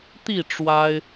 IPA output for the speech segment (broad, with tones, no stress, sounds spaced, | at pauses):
t̪ i˥˨ ʈ͡ʂ w a˦ ɪ̯